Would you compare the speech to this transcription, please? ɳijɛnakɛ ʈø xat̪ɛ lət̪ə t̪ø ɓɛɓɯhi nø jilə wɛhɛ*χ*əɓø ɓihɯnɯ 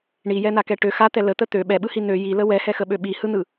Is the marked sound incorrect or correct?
incorrect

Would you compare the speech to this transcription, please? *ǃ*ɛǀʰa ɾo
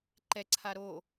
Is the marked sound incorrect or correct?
correct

